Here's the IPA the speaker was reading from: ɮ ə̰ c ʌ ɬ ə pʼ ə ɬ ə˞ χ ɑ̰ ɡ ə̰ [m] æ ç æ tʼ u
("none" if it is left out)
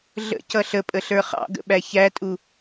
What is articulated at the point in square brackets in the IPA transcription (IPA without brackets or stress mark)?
ɓ